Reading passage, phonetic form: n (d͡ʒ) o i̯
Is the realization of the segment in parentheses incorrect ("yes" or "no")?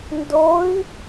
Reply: yes